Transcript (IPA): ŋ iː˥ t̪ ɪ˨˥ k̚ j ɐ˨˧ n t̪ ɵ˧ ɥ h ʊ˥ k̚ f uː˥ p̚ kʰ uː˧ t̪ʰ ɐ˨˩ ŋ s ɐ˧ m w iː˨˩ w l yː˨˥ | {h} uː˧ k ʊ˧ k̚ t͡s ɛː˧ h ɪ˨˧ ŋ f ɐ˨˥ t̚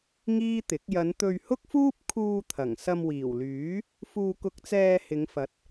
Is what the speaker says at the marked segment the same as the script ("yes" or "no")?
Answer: no